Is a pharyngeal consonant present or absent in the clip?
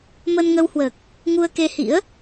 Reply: absent